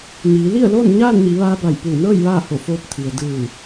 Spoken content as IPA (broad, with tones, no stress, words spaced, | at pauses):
ɲiː˩˧li˥˨ə̯loː˥˨n ɲaː˥˨nɲi˩˧ʋaː˧ ba˧˩jpuː˧˩nɤː˥˨j ʋaː˥˨ho˧˩foː˧p̚ t̪ʰi˩ə̯ dɯː˧˩